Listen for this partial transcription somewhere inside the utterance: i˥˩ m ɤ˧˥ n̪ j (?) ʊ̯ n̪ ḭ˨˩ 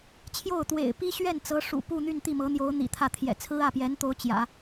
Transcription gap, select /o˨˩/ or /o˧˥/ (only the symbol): o˧˥